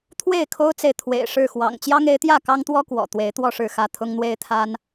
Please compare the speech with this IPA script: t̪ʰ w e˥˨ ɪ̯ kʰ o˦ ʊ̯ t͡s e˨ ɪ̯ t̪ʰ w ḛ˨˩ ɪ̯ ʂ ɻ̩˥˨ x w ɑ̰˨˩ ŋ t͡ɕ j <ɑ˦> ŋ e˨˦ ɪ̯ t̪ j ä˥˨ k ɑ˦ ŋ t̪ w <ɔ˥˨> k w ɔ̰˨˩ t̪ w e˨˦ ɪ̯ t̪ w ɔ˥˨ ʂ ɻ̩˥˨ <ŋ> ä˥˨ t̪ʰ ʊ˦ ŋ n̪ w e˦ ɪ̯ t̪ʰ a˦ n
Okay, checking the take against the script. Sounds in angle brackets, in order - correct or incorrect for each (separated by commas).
correct, incorrect, incorrect